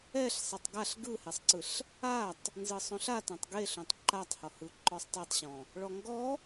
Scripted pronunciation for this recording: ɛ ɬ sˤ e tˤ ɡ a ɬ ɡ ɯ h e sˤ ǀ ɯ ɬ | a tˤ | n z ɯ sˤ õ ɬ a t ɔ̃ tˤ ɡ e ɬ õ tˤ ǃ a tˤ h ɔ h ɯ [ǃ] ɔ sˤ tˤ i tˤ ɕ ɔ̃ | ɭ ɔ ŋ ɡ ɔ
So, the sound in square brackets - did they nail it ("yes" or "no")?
yes